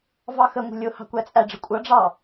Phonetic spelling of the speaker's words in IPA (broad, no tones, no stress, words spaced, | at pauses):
vɑxəŋʷə̤ lʲʊ hɑ̤kʷæt͡sʼæɖ͡ʐə kʷʼʌɖ͡ʐɑ